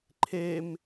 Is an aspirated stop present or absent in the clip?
present